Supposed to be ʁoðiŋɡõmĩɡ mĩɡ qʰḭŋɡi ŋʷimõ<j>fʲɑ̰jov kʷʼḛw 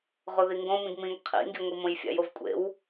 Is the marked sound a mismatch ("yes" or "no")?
no